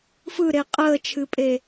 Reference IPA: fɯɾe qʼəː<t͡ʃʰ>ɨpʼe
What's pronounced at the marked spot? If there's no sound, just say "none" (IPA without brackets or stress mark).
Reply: t͡ʃʰ